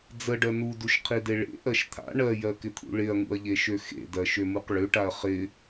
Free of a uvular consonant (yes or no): no